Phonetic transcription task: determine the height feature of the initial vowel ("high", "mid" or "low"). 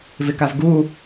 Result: high